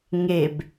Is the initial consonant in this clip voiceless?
no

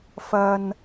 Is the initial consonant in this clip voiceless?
yes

